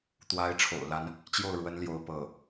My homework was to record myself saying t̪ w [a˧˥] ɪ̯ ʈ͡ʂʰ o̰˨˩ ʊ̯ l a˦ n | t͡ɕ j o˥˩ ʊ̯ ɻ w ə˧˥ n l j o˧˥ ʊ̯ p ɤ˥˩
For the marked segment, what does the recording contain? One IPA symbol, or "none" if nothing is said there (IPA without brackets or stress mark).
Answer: a˧˥